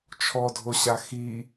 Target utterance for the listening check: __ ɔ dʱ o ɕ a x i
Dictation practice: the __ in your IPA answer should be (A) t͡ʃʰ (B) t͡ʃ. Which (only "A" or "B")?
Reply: A